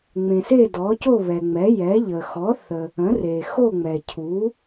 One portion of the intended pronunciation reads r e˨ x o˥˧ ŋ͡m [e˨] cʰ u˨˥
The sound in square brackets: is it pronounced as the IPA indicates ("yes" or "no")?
no